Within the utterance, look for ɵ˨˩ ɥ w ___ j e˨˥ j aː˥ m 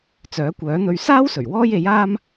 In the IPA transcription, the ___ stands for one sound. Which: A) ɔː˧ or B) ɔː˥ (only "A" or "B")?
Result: B